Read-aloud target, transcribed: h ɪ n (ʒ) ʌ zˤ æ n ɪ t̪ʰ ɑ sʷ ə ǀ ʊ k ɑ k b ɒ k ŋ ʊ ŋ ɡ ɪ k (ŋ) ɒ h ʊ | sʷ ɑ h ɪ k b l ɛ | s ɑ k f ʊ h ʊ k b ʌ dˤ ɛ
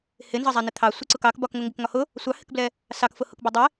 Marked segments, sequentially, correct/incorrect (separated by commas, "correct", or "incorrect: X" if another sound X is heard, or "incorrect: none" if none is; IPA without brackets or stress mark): incorrect: z, correct